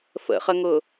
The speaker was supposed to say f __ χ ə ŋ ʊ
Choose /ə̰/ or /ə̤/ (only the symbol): ə̰